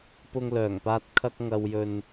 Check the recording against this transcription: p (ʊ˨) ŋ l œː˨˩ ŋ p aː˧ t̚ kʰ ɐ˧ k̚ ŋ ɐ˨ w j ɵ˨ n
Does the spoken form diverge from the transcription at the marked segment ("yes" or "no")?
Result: yes